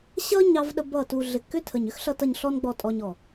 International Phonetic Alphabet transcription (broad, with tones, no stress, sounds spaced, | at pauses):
ɕ ʌ˦ ɲ ɑ˦ v ɗ ə˦ b ʌ˦˨ t u˧ ɮ ɪ˨ kː ʏ˦ tʰ ə˨ ɲ ʏ˦ x ɬ ʌ˧ t ʌ˧ ɲ ɬ ɔ˦ n ɡ͡b ɔ˧ tʼ ɔ˧ ɲ ɔ˨